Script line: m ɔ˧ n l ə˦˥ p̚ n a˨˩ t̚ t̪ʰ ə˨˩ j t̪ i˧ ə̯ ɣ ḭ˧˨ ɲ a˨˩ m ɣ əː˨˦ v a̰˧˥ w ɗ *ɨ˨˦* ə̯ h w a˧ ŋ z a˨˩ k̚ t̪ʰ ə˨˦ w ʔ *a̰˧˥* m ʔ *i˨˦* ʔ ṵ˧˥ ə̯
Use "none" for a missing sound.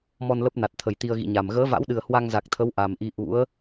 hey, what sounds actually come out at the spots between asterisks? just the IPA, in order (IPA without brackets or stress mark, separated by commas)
ɨ˨˩, a˨˩, i˨˦